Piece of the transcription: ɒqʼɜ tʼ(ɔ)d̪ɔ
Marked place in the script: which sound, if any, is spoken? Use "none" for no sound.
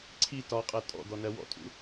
ɔ̰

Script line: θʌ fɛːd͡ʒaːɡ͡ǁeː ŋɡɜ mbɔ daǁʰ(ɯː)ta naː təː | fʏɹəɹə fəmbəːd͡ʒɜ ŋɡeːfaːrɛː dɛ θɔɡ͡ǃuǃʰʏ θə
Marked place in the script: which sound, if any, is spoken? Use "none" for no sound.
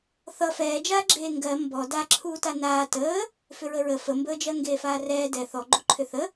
uː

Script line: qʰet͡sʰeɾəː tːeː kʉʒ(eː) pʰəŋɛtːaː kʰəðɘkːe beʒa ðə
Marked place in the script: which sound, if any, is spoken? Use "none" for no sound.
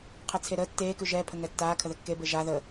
ɛː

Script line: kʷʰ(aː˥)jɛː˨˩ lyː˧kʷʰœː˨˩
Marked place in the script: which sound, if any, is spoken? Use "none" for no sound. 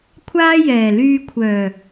aː˥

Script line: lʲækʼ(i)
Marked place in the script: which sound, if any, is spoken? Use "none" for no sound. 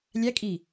iː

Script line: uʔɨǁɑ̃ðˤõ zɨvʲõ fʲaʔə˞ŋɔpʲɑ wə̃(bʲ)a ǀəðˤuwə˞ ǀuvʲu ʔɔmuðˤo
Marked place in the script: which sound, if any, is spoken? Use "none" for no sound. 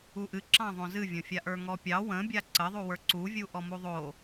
bʲ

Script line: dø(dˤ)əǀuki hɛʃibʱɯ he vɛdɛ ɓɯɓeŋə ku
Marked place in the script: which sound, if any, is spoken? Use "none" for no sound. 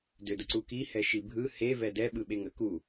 d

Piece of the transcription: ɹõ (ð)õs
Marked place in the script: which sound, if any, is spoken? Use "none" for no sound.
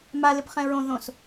ð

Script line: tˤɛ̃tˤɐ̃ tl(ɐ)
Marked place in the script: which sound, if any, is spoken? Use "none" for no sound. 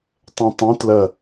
ɐ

